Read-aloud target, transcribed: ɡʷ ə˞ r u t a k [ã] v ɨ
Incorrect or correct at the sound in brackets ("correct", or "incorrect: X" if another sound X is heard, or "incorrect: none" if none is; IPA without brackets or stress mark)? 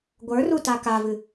incorrect: a